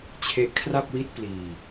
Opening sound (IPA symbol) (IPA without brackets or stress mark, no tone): t͡ɕʰ